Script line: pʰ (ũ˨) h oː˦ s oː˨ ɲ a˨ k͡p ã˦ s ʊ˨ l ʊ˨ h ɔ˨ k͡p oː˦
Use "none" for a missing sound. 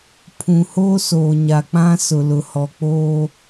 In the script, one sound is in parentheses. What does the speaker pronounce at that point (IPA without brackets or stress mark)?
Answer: ũ˨